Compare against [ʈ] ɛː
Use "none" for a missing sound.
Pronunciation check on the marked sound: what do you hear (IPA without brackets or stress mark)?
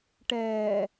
ʈ